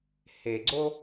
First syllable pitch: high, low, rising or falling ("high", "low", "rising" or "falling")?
low